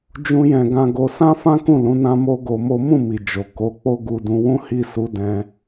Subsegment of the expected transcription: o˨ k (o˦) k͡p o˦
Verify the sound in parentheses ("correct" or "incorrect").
incorrect